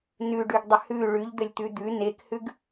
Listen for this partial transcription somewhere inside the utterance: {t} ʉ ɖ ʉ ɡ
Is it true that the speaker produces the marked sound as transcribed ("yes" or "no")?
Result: no